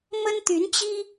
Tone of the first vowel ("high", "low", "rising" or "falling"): high